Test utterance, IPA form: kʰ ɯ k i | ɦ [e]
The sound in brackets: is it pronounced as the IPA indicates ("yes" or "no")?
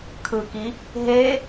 yes